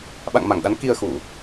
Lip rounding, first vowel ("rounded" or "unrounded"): unrounded